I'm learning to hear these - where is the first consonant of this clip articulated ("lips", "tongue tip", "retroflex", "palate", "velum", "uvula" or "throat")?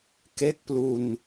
velum